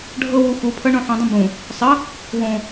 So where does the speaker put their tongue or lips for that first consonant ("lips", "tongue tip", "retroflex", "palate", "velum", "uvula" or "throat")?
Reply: retroflex